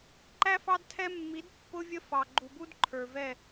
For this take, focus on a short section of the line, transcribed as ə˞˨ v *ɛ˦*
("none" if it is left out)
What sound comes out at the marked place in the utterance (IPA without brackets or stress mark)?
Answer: ɛ˦˨